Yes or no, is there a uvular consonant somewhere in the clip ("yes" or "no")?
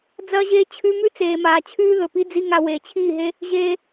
no